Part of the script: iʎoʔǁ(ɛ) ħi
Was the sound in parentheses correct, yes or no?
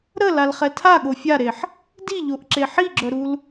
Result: no